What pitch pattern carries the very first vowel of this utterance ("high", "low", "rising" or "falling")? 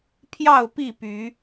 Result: falling